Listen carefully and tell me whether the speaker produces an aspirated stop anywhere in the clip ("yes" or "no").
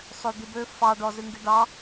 no